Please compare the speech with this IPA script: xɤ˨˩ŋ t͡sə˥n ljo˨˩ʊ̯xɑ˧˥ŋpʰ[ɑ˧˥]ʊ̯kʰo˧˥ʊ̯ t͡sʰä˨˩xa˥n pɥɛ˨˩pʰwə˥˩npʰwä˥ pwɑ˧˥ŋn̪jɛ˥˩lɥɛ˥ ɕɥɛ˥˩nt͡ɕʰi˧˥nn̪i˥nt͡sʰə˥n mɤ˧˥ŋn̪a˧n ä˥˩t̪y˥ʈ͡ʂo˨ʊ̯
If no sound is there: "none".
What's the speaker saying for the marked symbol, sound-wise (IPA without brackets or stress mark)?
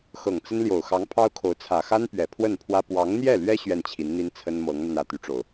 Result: ɑ˥